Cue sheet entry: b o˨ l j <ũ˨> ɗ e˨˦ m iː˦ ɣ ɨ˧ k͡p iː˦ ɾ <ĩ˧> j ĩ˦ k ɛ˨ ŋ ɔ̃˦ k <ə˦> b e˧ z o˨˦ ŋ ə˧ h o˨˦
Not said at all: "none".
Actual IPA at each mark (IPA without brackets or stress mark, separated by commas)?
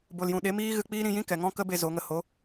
ũ˨, ĩ˧, ə˦